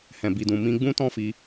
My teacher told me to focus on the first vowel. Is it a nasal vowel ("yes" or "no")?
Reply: yes